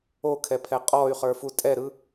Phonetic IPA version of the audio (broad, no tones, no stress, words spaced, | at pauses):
okʰɛpʰɛ qʼɔy̯χə˞fu tʼɛɾɯ